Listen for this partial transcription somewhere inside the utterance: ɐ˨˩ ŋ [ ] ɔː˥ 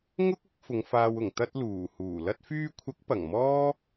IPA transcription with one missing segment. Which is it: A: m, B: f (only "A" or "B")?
A